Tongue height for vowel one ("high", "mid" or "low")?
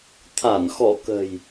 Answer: low